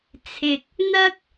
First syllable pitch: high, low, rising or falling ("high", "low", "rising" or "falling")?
low